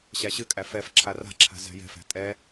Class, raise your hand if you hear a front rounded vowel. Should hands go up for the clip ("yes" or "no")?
no